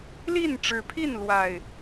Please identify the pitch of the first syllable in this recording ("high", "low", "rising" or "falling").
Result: falling